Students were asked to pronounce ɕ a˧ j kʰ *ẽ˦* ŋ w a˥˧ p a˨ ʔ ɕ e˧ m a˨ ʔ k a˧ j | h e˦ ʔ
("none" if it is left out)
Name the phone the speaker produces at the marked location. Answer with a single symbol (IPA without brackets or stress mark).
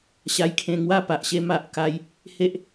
ẽ˧